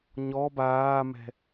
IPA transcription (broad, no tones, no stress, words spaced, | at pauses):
ɲɔ baːmɛ̤